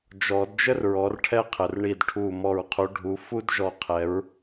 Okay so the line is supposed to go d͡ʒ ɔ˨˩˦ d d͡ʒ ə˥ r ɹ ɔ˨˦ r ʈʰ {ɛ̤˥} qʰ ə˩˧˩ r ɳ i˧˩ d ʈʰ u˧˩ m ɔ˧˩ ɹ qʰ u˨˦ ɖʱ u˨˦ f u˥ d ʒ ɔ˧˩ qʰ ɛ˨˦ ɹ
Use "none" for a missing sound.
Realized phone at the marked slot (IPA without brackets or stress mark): ɛ˥